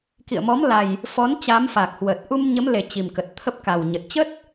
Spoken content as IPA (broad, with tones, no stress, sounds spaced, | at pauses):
k ḭ˧˨ ə̯ m ɔ˨˦ m l a˨˩ j | f ɔ˨˦ n t͡ɕ a˨˦ m f a˨˩ k̚ h w ə˨˩ t̚ ʔ u˧ m ɲ ə˨˦ m l e˨˩ t͡ɕ i˨˩ m k ə˨˩ t̚ t̪ʰ ə˦˥ p̚ k a˨˩ w ɲ ə˨˩ t̚ t͡ɕ ə˦˥ t̚